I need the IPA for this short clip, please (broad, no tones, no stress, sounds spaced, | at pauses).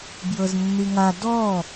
b j ɤ z nː i ŋ a d ɔ